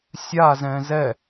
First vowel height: low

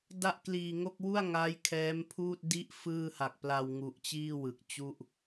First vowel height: low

